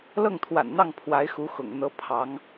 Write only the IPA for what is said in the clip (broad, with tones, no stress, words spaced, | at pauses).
lɤ˥˩ŋt̪ʰwa̰˨˩nn̪ɑ˥˩ŋ pʰwa˧˥ɪ̯xu˧˥ xʊ̰˨˩ŋn̪ɤ˥ pʰɑ˧˥ŋ